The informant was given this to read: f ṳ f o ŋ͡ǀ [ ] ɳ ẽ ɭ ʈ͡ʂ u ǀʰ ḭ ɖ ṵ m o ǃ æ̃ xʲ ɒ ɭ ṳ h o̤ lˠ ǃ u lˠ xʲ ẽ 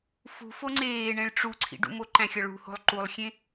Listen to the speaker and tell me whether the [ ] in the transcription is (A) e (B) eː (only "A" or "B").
B